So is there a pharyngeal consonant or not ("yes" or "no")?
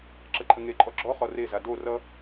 no